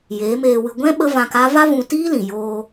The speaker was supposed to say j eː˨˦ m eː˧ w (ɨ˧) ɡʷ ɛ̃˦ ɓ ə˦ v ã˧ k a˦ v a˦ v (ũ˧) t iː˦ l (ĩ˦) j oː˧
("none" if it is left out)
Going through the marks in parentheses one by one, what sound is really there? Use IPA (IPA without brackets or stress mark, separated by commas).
ɨ˧, ũ˧, ĩ˨